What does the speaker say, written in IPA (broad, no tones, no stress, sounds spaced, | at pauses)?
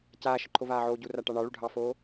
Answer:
c aː ʃ ə ǃʰ o v aː ʕ oː ɟ u r a ʈ ɑ ɳ ɑ ɭ u ɖʱ ɑ f oː